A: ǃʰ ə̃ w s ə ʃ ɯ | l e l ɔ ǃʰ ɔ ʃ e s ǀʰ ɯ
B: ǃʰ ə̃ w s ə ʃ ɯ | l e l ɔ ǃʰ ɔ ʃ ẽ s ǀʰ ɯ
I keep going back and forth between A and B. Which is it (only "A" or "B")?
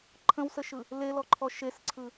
A